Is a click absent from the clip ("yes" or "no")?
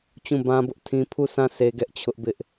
yes